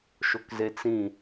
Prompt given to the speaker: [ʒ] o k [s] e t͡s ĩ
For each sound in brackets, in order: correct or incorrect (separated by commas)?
incorrect, incorrect